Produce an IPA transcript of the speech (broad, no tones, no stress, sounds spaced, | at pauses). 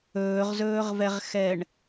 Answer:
ɵː ʁ z ɵː ʁ v ɛ ʁ x ɛ ɳ